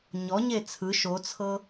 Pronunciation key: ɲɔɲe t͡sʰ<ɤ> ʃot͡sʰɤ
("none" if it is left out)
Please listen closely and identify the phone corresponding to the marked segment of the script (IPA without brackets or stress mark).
ɯ